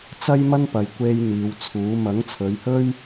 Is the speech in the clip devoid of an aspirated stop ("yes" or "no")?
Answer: no